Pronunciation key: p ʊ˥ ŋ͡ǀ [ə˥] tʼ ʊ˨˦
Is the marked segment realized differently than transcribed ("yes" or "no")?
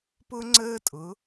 yes